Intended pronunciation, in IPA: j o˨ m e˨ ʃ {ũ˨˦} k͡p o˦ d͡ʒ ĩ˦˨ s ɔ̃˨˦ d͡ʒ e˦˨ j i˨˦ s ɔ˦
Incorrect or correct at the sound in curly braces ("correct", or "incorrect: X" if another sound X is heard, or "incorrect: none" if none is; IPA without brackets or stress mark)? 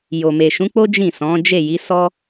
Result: correct